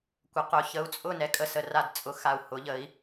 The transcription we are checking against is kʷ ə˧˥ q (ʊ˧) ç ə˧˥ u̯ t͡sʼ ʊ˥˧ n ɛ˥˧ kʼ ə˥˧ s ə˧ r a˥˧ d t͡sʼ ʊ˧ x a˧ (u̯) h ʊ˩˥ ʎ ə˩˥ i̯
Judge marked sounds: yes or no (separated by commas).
yes, yes